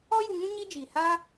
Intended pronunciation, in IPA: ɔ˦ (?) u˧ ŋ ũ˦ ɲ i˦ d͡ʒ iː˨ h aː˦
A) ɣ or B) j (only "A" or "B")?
B